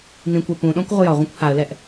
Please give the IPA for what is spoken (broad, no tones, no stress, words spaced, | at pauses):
nĩkʷɛ pũɗɔ̃kʷ ʁʷəjɒʁʷĩkʷ haə̯lɛʔ